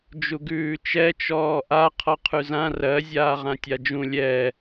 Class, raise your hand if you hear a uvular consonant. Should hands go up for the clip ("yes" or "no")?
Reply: yes